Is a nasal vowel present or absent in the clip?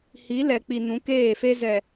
present